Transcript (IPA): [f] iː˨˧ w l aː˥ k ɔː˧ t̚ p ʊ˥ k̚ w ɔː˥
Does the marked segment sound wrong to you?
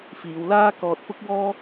no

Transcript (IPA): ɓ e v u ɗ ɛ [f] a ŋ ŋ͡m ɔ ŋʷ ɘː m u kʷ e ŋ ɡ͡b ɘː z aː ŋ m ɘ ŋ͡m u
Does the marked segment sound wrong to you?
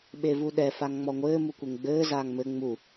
no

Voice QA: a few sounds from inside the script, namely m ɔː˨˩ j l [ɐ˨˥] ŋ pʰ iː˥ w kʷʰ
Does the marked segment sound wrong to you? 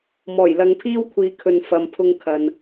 yes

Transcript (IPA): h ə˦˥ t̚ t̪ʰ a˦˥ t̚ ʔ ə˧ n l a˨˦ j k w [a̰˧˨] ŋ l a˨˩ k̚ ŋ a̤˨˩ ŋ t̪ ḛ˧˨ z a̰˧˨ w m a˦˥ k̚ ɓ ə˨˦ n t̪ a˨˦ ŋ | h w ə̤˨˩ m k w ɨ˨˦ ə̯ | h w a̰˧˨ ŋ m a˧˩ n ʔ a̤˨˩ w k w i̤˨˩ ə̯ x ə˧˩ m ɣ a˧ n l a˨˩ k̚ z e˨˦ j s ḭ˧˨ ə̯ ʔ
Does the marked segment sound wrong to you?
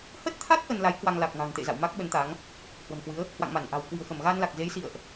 yes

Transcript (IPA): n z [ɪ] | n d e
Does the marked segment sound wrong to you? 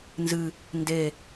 yes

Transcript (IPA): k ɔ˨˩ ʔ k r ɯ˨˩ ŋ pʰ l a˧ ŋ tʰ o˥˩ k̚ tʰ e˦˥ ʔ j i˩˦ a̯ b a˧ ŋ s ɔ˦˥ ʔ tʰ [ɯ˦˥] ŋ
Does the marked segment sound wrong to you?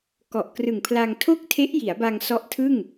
yes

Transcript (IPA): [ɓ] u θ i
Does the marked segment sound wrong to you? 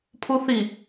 yes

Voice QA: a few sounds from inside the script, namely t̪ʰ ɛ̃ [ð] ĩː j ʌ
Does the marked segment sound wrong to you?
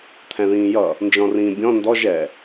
no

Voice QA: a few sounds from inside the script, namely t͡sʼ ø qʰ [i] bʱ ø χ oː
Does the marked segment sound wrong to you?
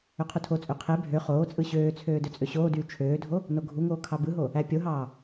yes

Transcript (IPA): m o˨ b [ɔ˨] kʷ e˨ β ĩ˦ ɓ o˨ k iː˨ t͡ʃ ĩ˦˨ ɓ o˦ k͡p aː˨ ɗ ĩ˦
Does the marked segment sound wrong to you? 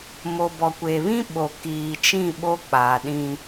no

